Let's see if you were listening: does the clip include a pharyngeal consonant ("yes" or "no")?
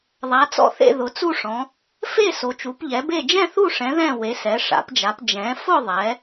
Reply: no